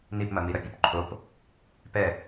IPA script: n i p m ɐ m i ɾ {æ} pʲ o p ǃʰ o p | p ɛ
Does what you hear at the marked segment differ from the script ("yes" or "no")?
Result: yes